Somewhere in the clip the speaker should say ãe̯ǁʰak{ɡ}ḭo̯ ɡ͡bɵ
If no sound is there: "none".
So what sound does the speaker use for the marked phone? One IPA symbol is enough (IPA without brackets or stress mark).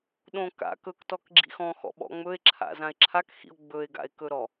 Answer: x